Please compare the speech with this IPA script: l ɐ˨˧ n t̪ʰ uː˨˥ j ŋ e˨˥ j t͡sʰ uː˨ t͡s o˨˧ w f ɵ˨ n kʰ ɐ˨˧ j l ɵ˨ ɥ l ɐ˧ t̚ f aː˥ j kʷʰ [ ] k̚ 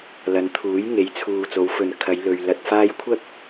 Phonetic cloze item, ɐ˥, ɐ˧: ɐ˥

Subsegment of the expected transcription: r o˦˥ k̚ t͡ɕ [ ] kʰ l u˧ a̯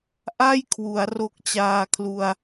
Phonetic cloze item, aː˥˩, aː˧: aː˧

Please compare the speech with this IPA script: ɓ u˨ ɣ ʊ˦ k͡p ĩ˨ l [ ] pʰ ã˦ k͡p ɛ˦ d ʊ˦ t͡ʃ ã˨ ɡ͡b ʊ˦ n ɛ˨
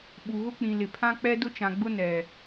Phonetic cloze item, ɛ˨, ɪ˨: ɪ˨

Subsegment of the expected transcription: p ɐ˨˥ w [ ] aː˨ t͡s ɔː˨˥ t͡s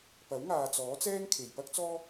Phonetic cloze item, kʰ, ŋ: ŋ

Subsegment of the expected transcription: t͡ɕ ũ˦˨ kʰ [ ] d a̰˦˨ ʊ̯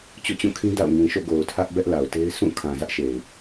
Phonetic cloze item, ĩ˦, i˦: ĩ˦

